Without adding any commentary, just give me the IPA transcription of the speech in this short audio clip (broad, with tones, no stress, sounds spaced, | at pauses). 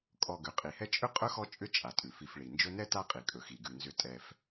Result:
kʼ ɔ˨ ɡ ʏ˩ qʼ i˩ h ɛ˦ t͡ʃʼ ʏ˥ qʼ ɵ˥ x ɔ˦ t͡ʃʼ ʏ˦ t͡ʃʼ a˩ tʼ ʉ˩ f i˨ f ɭ i˩ n d͡ʒ ɵ˦ n ɛ˥ t a˥ qʼ i˩ kʼ ɵ˩ x i˩ ɡ ʉ˩ n z ʏ˨ tʼ ɛ˨ f